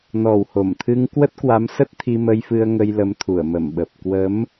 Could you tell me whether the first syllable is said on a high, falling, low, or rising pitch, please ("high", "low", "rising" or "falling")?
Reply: low